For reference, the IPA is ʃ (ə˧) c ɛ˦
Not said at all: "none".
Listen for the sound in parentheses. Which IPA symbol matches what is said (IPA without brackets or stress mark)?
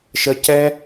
ə˧